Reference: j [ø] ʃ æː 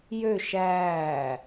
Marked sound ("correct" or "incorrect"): correct